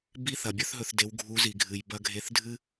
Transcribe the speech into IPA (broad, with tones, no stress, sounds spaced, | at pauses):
b i˦ θ ɐ˨ bʲ ɵ˦ θ ɦ ɵ˧ θ d e˨˦ w ɡʱ u˨˦ z i˨ ɡʱ ɨ˨ j b ɐ˧ ɡʱ e˧ θ dʱ ɨ˦